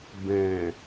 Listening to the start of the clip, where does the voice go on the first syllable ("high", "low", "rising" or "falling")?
low